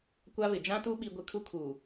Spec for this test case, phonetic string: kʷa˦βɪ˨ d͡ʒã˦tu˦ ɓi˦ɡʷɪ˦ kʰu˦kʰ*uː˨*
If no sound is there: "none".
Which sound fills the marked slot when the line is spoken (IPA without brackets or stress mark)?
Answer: uː˨